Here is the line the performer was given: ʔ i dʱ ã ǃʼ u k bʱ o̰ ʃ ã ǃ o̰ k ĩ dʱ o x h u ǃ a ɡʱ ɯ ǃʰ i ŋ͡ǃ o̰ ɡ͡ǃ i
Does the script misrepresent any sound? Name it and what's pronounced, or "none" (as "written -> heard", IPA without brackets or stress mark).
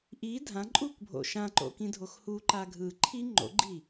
none